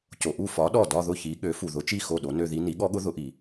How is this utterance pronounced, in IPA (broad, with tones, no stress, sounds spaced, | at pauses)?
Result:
c o˨ ʔ u˥˩ f ɒ˨˥ ɗ ɔ˥˩ d ɒ˥˧ ð ʊ˥˩ ç i˨˥ ɠ ø˨˥ f u˨ ð ʊ˨˥ t͡ʃ i˥˩ x o˥˩ ɗ o˨˥ n ø˥˧ ð i˦˥ n i˨˥ ɠ ɔ˦˥ ɠ ʊ˦˥ ð ʊ˨˥ ʔ i˨